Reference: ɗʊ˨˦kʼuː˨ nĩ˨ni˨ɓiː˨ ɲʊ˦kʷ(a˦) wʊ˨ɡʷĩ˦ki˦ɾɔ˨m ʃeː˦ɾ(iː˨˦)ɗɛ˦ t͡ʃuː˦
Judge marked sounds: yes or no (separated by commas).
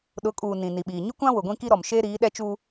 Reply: no, yes